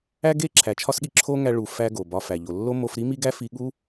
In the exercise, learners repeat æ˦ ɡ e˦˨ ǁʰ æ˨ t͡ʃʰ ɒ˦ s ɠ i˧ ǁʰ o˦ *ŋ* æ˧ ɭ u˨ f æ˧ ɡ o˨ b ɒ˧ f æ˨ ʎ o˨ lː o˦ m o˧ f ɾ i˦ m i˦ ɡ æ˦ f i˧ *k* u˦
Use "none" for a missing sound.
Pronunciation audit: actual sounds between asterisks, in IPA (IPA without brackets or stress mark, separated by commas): ŋ, ɠ